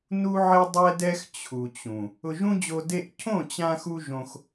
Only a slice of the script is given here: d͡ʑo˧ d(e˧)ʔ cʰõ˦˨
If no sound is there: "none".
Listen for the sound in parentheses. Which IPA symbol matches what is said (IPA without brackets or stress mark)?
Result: e˧